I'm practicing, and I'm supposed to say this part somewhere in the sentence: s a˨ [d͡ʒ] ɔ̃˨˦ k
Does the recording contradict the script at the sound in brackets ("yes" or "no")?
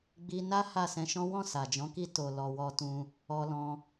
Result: no